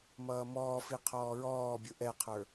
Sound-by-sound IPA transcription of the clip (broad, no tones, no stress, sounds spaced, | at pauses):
m ʌː m ɔː f i qʰ ɔː ɹ ɔː bʲ ʊ ʔ ɛ qʰ ə˞